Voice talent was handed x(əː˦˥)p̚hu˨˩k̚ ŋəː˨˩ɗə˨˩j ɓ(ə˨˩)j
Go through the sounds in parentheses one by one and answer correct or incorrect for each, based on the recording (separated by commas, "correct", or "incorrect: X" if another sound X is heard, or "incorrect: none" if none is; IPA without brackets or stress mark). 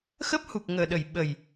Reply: correct, correct